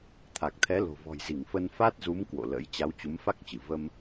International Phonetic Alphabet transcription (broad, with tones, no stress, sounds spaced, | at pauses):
t̪ʰ a˨˩ k̚ t̪ʰ ɛ˨˦ l o̤˨˩ v ɔ̤˨˩ j z i˧˩ ŋ f ə˧ n f a˦˥ t̚ z u˨˦ m k w o̰˧˨ l ə̰˧˥ j t͡ɕ a˨˦ w t͡ɕ u˨˦ m f a˦˥ k̚ t͡ɕ ɨ˧˩ v ə˧ m